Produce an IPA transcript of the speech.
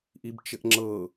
ʔ i b t͡ʃ ɘ ʔ ŋ͡ǁ ɤ

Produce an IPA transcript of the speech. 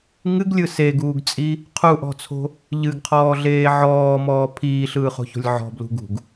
ŋ ɨ ɡ lʲ ɯ s e ɡ uː ɡ t͡sʼ i | qʰ u ʔ ɔ̤ t͡sʰ o̤ | ʎ ɨ ɡ qʰ ɔː ɮ eː ʕ ɔː m ɔː pʰ iː ɬ ɯː χ o̤ ç o̤ lʲ ʕ ɔ̤ b l ṳ ɡ ṳ ɡ

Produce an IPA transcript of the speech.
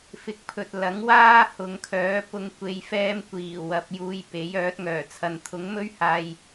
f ɪ˨˥ k̚ pʰ ɵ˨ t̚ l ɐ˨˥ ŋ w aː˥ h ʊ˨˧ ŋ kʰ œː˨˥ p ʊ˨˧ ŋ kʷ e˨˧ j f ɛː˧ m kʷ iː˨˩ w ɐ˨˥ p̚ j uː˧ j p e˨˥ j œː˨˥ t̚ ŋ œː˨˩ t͡sʰ ɐ˨ n t̪ʰ ʊ˨˥ ŋ m ɵ˥ ɥ h aː˧ j

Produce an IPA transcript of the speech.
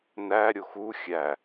n æ ɾʲ o x u xʲ æ

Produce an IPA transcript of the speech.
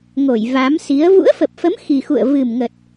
ŋ o˧˩ j v a˨˦ m s i˨˦ ə̯ v ṵ˧˥ ə̯ f ə˨˩ p̚ f ə˨˦ m x i˨˩ x ṵ˧˨ ə̯ v ɨ˨˩ m ŋ ə˨˩ t̚

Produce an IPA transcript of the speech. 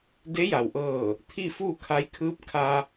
d e˧˥ j a˩ w ʔ ɤː˧˩ | t̪ʰ i˥˨ f uː˥˨ kʰ a˧˥ j kʰ ɯː˧˥ p̚ kʰ a˧

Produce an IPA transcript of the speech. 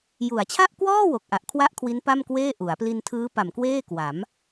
j u˩˦ a̯ t͡ɕʰ a˥˩ ʔ k w ɔː˥˩ w o˨˩ k̚ ʔ a˨˩ ʔ kʰ w a˥˩ ʔ kʰ w i˦˥ n p a˥˩ m k w eː˥˩ ʔ u˩˦ a̯ p l i˧ n tʰ ɯː˦˥ p a˨˩ m k w eː˥˩ k w a˩˦ m

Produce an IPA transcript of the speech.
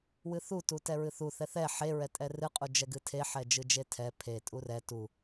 w ɨ θ u t u t ɛ ɹ ɨ θ u θ ɛ θ ɛ ħ e ɹ ɛ tʼ ɛ r ɨ qʼ u d͡ʒ ɛ ɡ ɨ tʰ e ħ ɛ d͡ʒ ɨ d͡ʒ e tʰ ɛ pʰ e tʼ u r ɛ t u

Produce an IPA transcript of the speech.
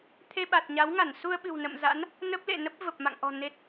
t̪ʰ e˧ ɓ a˨˩ t̚ ɲ a˨˦ w ŋ a˧˩ n s u˧ ə̯ ɓ ɨ̤˨˩ w n ə̰˧˨ m z a̰˧˥ n | n ə˦˥ p̚ l ḛ˧˨ n ə˦˥ p̚ v ə˨˩ p̚ m a̰˧˨ ŋ ʔ ɔ̤˨˩ n e˨˩ t̚

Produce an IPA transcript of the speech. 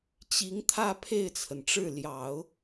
t͡ɕ i˧˥ ŋ t̪ʰ ä˥˧ pʰ e˥˩ ɪ̯ t͡sʰ ə˩ n ʈ͡ʂ ɻ̩˥˩ l j ɑ˨˩˦ ʊ̯

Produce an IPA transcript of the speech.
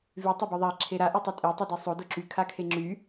v y tˤ e b y ðˤ a ǁʰ e ɾ a ʔ y tˤ y tʼ e tˤ y d e sˤ o d o ǁ y kʰ a kʰ e ŋ͡ǁ y

